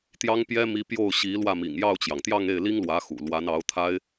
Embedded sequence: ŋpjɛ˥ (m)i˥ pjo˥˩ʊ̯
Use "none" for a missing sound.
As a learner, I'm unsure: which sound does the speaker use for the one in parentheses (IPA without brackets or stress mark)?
m